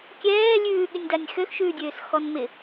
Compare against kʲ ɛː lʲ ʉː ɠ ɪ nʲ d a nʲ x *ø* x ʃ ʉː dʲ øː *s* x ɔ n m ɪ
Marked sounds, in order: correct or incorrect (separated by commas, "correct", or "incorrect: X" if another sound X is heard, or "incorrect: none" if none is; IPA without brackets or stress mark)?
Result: correct, correct